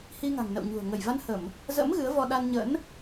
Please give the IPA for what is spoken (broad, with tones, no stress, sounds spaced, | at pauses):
h i˧ ŋ a̤˨˩ ŋ n ə̰˧˨ w ɲ ṳ˨˩ ə̯ ŋ ə˧˩ j v a˧ n h ə˧˩˨ m | z ə̰˧˥ m ɣ ɨ˨˦ ə̯ v ɔ˧ ɗ a˧ n ɲ ə̰˧˥ n